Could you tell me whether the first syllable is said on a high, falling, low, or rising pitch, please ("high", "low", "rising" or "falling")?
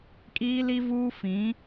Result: high